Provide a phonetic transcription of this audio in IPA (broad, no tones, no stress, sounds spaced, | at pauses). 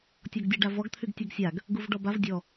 tʲ ɔ ɡ dʲ ɤ ɖ a v ɔ ɡ t̪ʰ y ɡ tʲ ɤ ɡ sʲ a ɡ | ɡ u v ɖ ɔ b a v dʲ ɔ